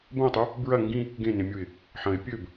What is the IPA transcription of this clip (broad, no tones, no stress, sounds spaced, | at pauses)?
b ɐ̃ ɪ̯ tˤ ʉ | b ɹ ɐ ŋ ɡ ĩ | ɡ ẽ n ẽ mʲ u ɪ̯ | ħ ɐ̃ ɪ̯ pʲ ɵ b